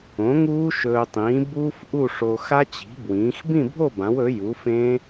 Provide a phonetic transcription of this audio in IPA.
õ˩˥ ŋ uː˦˥ ʃ ɵː˧ tˤ ĩː˩˥ b uː˦˥ f ʔ u˥˨ ʂ o˧ x a˦˥ t͡ɕ i̤˩˥ b w ĩː˩˥ x b ĩ˥˨ bʱ o˥˨ b ã˩˥ w ɵ˩˥ j u˩˥ f ẽ˦˥

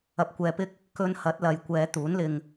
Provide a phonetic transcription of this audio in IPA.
ɐ˧ p̚ kʷ ɛː˧ p ɪ˥ k̚ | k ɵ˧ n h ɐ˨˥ t̚ l ɐ˨ j kʷ ɛː˨˧ t̪ uː˨˥ n l ɪ˧ ŋ

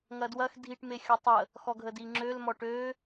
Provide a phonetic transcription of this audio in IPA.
ŋ ɐ d w ɐ x dʱ i ʈ m e xʲ ɔ tˤ ə | x ɔ ɡʱ ə d i ŋ͡ǁ ø l m ɔ ʈ ø

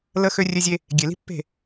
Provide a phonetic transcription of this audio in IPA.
l ə˦ x ø˦ rʲ ø˦ zʲ e˦ | ɡʲ e˨ l i̤˦ pː e̤˦˨

